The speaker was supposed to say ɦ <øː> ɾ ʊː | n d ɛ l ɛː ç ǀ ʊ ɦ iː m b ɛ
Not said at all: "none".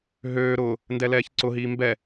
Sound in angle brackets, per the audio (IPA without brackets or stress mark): øː